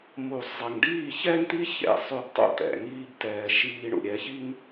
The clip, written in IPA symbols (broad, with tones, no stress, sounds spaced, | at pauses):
m uː˨ sˤ zˤ ɛ˨ ŋ ɖ iː˦˨ ç ɛ˦ ŋ t̪ i˦ ç ɛ̰˧ sˤ ʉ˧ b tˤ ṵ˦˨ t̪ ɛ̰˨ ŋ iː˦ b t ɛː˧ ʃ iː˧ ɳ ṵ˨ ɾʲ ɛ˨˦ ç iː˦ ŋ